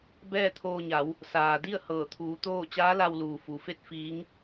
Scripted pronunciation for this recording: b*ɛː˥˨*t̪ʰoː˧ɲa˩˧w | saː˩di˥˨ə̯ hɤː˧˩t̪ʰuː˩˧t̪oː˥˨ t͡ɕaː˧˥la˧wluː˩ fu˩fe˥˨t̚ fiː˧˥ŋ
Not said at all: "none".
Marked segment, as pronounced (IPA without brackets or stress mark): ɛː˥˨